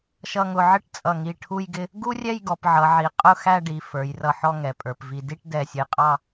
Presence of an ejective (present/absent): present